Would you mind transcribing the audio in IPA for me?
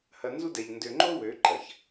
h ɐ˨ n z u˦ d ɛ˨ ʎ n d ø˨ ŋ͡ǃ o˦ w ø˨˦ ǃ ɐ˨ ç

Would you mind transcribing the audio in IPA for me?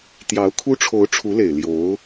t̪ j ɑ˧˥ ʊ̯ kʰ u˥ ʈ͡ʂʰ o˧˥ ʊ̯ ʈ͡ʂʰ u˧˥ l e˨˩ ɪ̯ l j o˧˥ ʊ̯

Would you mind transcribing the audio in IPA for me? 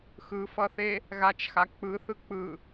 x ɯ f ʌ θ e | ɣ a t͡ʃ x a k͡p ɯ θ ɯ k͡p ɯ

